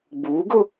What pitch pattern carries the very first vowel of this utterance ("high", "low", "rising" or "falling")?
rising